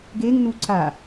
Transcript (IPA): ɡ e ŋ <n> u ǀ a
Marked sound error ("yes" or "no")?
no